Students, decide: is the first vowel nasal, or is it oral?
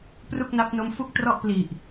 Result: oral